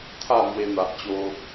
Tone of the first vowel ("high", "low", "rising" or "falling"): falling